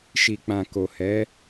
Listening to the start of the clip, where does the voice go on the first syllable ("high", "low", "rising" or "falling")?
low